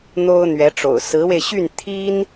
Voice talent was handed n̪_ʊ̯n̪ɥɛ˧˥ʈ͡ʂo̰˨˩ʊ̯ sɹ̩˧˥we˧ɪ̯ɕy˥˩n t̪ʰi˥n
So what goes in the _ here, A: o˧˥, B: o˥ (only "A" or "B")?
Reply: B